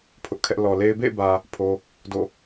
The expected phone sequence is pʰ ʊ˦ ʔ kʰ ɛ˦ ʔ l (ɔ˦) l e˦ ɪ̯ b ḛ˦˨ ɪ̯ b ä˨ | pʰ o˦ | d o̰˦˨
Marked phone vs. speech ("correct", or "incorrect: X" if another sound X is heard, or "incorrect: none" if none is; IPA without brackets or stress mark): incorrect: ɔ˨